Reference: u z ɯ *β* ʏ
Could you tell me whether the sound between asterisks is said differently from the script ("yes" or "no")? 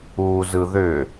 yes